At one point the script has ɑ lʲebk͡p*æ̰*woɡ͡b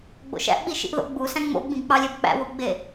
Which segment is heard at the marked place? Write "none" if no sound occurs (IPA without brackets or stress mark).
æ̰